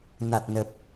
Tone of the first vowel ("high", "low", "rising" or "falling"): low